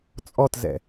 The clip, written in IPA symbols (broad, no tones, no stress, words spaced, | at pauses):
t͡sʼɔtzɛ̰